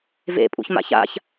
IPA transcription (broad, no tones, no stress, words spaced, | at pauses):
vḛ pʼṵçma̰ça̰ç